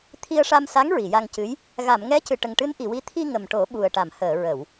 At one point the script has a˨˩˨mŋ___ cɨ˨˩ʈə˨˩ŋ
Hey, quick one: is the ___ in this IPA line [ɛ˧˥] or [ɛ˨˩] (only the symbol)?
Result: ɛ˧˥